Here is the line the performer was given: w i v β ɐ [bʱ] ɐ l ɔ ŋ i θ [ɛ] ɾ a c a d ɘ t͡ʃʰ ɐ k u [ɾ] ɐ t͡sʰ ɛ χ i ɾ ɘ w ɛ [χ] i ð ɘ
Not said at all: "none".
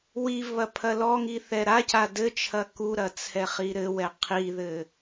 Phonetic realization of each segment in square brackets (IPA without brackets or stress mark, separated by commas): pʰ, ɛ, ɾ, qʰ